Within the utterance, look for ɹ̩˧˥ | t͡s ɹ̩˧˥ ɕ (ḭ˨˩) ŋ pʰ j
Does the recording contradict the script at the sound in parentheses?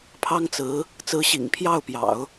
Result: no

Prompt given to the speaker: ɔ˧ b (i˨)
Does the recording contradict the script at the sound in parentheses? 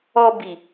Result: no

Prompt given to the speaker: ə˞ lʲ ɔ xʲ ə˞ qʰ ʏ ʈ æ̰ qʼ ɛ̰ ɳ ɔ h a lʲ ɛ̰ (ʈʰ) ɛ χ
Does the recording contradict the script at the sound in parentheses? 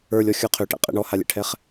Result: no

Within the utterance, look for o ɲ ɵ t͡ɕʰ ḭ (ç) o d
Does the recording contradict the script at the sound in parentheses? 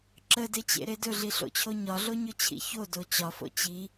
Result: no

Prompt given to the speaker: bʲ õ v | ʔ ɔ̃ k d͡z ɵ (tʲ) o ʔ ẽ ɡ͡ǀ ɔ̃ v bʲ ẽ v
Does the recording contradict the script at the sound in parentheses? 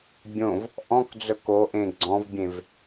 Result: yes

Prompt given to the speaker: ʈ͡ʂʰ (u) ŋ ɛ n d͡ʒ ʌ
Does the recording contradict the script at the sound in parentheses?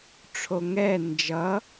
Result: yes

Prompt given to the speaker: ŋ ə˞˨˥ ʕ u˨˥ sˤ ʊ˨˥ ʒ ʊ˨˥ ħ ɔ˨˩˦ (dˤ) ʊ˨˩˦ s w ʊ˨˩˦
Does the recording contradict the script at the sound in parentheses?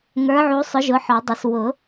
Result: no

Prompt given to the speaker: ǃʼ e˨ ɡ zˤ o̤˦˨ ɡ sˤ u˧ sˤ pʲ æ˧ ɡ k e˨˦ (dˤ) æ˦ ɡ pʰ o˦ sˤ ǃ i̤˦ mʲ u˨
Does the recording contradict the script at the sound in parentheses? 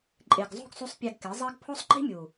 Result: yes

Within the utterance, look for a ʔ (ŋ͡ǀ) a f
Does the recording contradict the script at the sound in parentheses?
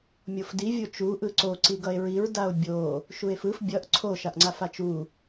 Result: no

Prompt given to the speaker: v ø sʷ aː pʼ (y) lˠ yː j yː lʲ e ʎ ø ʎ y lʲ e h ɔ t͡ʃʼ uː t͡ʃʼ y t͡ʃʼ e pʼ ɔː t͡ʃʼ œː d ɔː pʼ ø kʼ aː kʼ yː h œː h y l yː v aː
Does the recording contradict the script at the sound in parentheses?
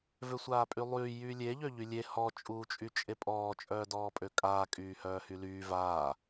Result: no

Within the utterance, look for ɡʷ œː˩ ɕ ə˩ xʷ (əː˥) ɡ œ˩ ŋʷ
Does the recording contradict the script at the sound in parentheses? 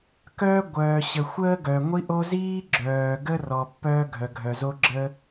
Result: no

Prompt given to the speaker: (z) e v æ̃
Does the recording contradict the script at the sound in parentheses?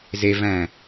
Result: no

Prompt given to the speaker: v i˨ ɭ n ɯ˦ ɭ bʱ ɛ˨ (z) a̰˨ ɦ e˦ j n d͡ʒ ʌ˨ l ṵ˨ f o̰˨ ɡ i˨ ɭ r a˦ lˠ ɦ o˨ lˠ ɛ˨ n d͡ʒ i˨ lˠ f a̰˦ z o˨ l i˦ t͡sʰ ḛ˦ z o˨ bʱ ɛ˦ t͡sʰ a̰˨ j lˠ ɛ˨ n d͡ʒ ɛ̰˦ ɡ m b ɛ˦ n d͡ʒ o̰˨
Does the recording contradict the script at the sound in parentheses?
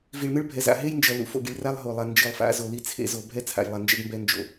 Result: no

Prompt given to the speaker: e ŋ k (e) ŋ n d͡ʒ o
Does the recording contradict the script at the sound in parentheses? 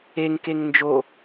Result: no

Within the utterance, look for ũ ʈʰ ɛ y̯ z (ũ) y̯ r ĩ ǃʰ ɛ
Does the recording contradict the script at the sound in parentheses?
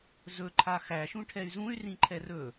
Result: no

